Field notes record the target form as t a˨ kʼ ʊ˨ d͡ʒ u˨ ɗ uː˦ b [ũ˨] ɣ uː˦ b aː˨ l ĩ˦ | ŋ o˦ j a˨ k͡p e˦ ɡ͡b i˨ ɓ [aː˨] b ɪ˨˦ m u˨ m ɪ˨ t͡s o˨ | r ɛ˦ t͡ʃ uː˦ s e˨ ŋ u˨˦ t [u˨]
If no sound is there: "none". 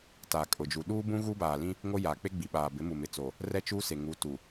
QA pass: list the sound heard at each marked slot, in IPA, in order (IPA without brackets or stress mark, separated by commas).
ũ˦, aː˨, u˨